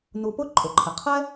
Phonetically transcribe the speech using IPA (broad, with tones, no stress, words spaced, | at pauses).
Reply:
nu˧ pʊ˥ ǃʼʊ˩ǃʰɪ˩qʰɛ˥